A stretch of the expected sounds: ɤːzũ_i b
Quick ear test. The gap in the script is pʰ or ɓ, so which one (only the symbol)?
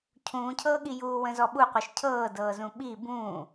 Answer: ɓ